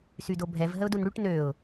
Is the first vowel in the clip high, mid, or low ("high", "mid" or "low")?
high